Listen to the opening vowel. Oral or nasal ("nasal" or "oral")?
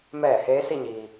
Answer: oral